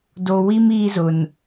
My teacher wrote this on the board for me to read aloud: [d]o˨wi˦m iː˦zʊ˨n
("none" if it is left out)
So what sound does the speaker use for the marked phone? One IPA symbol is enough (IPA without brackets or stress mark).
d